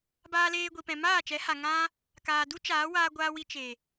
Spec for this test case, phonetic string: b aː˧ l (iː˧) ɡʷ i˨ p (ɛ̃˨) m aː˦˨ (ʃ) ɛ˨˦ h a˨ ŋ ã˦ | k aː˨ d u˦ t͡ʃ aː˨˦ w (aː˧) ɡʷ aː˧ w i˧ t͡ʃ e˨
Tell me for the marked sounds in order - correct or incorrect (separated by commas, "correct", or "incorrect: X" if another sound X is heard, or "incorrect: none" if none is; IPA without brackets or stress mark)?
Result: incorrect: eː˧, correct, incorrect: t͡ʃ, correct